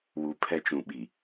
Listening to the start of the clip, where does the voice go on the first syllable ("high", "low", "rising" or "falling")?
low